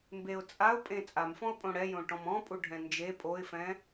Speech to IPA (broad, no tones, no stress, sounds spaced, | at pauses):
m b e ʊ̯ t͡sʼ a ʊ̯ pʼ ẽ t͡sʼ a m f ɔ̃ ʊ̯ pʼ õ ɽ ɛ j õ ʈ ɔ̃ m ɔ̃ pʼ u ɖʱ ɛ̃ n d͡ʒ e pʼ o ɪ̯ f ɛ̃